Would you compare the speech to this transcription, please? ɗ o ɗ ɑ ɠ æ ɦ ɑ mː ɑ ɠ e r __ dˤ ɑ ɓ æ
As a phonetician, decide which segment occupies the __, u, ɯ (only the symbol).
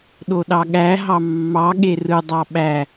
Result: ɯ